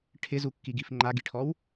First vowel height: high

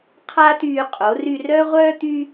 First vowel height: low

